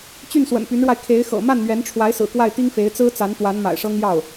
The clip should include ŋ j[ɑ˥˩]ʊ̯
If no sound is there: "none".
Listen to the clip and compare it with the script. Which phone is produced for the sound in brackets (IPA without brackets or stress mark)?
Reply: ɑ˥˩